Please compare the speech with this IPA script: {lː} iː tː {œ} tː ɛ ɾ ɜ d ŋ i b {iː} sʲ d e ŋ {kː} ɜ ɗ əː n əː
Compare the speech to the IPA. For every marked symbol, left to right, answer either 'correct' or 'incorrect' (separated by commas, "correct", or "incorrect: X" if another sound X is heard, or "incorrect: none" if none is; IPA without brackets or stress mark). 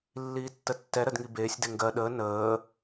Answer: correct, incorrect: ə, incorrect: eː, incorrect: ɡ